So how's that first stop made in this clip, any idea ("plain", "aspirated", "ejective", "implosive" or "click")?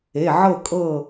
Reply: ejective